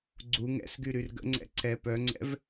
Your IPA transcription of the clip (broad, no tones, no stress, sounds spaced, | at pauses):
ɡ͡ǀ u ŋ ɛ̰ s ɡ y ɾ y r ɡ ə̰ ŋ͡ǀ ɛ̰ ǀ ɛ p œ ŋ͡ǀ ɛ̰ v